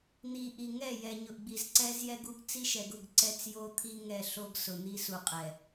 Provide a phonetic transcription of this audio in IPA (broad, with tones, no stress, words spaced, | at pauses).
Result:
n̪i˨ʔi˨ ŋɛ˦˨jɛ˨ɲʊ˨ʔɡ͡bi˨z ǀɛ˦zjɛ˦ɡu˦ɡ t͡si˦ʃɛ˨ɡʊ˦˨ɡ ǀɛ˦t͡sjo˦ t̪ʰi˦ ŋɛ˨ ɬo˦ɡsʊ˨n̪i˦ su˨qʼɛ˨